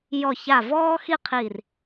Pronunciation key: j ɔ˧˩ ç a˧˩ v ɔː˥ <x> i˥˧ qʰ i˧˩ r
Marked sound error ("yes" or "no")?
no